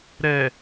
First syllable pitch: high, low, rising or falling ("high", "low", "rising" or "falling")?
low